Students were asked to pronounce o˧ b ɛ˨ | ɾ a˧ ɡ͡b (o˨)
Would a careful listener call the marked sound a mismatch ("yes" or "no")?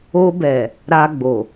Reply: no